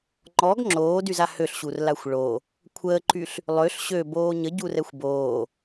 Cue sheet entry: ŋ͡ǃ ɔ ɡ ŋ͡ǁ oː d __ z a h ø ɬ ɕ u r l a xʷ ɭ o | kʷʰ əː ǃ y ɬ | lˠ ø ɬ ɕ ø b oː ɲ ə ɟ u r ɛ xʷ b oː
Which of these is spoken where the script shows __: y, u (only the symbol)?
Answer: y